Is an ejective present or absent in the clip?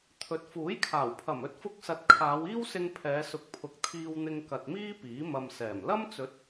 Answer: absent